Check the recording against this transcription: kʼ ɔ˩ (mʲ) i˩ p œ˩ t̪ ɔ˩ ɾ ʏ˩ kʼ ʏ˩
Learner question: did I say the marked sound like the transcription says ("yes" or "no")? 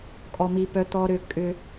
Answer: no